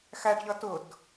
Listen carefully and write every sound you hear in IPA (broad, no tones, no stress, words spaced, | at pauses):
xæɖʎʌ tʊd